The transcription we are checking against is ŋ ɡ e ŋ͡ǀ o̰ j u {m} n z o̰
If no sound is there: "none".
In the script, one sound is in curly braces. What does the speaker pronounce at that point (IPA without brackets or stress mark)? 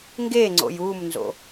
m